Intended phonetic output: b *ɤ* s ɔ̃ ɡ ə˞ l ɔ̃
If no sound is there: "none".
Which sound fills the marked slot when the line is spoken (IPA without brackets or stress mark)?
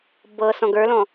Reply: ɤ